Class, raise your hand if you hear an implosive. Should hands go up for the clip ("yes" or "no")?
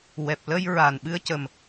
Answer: yes